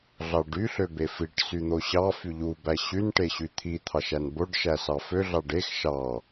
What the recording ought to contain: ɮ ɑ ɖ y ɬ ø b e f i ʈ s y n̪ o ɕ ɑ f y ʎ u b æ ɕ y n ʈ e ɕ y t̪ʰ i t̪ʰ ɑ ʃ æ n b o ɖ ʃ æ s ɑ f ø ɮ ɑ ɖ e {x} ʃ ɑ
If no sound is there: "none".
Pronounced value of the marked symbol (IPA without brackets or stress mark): x